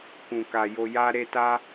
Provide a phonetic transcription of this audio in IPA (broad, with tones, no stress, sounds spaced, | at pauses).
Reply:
k ũ˨ k a˨ j o˧ j a˧ ɾ e˧ t a˦